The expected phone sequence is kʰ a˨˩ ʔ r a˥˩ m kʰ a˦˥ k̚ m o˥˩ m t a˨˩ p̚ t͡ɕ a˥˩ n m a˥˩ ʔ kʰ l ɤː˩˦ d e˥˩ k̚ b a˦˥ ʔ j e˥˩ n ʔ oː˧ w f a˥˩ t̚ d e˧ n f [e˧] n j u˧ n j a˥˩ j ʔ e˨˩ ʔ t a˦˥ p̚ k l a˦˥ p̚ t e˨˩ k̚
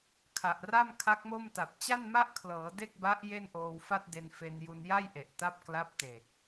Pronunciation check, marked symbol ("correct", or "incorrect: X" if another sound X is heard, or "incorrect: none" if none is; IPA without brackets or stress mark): correct